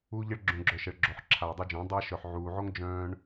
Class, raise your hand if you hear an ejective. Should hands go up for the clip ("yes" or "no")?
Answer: no